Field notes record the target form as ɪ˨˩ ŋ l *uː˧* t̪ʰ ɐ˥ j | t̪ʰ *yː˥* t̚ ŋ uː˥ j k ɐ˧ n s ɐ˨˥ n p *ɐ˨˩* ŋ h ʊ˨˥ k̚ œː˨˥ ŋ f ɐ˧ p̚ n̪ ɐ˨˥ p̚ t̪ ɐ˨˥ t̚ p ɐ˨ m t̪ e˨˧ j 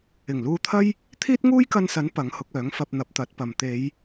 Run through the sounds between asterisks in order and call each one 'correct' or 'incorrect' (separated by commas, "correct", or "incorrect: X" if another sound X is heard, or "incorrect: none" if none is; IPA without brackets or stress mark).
correct, incorrect: iː˥, incorrect: ɐ˨˥